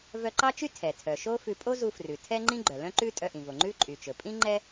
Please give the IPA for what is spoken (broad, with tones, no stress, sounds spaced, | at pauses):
v œ˧ ǃ ɑ˥ t͡ʃ y˥ tʰ ɛ˩ tʰ œ˩ ʃ o˥ f ʉ˧ pʼ o˥ z u˧ f r ʉ˩ tʰ ɛ˥ ŋ͡ǃ ĩ˥ ɡ͡ǃ œ˩ l œ̃˥ ǃ ʉ˥ tʼ œ˧ ʔ ĩ˩ v o˩ ŋ͡ǃ ʉ˥ ǃʼ y˩ t͡ʃ ɵ˩ pʼ ĩ˥ ŋ͡ǃ ɛ˥